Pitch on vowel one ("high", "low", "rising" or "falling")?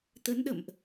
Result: rising